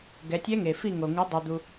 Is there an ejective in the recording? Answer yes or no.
no